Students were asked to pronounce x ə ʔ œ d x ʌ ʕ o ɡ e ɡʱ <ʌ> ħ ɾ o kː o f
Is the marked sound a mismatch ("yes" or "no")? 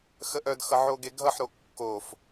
no